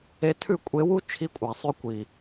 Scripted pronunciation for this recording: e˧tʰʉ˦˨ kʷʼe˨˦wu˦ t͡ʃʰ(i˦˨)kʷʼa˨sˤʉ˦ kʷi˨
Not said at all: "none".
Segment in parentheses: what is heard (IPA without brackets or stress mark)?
i˦˨